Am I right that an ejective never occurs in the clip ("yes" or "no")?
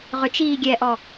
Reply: yes